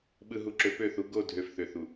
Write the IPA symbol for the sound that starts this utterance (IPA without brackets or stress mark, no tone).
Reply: ɓ